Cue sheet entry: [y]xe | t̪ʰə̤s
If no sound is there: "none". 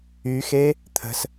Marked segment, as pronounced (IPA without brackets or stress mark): y